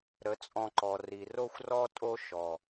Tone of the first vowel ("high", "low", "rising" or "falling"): rising